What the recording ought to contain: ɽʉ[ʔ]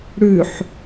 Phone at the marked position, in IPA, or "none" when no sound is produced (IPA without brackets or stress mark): ħ